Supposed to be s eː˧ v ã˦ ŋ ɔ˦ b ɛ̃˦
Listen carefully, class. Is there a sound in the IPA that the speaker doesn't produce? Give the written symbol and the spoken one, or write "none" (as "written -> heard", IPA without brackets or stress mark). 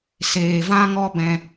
none